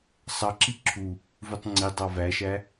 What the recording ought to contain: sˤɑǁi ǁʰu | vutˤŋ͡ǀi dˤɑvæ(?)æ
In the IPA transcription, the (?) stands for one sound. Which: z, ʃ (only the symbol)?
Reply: ʃ